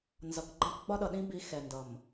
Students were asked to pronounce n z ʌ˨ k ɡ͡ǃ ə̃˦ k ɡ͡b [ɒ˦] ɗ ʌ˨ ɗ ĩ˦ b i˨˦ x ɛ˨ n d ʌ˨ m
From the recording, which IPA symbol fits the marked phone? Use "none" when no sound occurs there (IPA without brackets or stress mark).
ɒ˦